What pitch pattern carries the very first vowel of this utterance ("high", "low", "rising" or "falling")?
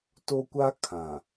high